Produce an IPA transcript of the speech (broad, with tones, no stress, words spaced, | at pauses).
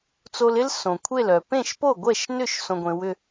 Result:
t͡so˧lɪ˥l sõ˩kʷʰe˥˩l œ˩ pẽ˥˩ʃpo˥˩ɡʷɛ˥˩ʃnʏ˥˩ʃ sõ˧ɡʷẽ˩˥wʏ˧